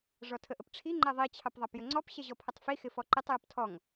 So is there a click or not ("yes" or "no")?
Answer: yes